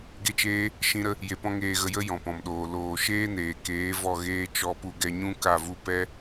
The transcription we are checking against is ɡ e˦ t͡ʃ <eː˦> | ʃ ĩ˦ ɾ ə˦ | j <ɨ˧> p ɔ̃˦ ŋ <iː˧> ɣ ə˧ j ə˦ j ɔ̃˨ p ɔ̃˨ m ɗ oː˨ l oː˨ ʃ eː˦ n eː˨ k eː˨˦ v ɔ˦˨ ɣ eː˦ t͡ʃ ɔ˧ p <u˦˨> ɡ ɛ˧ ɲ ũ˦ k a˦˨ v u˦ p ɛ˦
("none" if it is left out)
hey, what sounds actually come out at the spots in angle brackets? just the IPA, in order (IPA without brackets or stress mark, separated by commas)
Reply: eː˦, e˧, eː˧, u˧